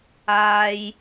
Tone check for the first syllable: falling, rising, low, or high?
low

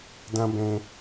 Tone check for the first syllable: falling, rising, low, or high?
high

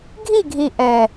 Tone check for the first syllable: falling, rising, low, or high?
falling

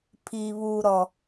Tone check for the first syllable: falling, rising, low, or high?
low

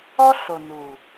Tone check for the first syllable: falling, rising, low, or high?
high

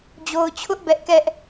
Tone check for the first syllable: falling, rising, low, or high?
low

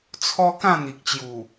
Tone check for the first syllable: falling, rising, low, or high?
high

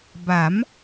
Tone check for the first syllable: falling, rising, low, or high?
rising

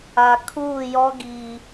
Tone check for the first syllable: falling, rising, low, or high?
low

